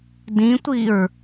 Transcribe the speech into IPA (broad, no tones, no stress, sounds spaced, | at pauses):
d ĩ tʷ i ɹ